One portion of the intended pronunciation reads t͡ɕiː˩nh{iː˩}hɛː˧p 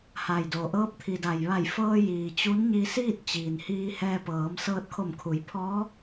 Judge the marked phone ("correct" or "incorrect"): incorrect